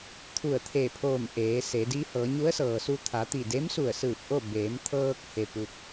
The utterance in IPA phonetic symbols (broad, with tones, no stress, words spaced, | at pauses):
t̪ʰu˧˩ə̯t̪ʰe˧˩pʰoː˧˩m ʔeː˩˧se˩˧di˧˥ hɤː˩˧ɲu˧˥ə̯sɤː˩su˧ t̪ʰa˩˧t̪i˧˩ de˧˥msu˧˩ə̯sɯː˧˩p̚ ʔo˥˨ beː˩˧mt̪ʰɤː˧k̚ he˧pu˧k̚